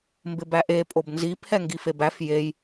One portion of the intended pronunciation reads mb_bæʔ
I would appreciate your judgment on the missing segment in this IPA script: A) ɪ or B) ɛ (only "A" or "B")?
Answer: A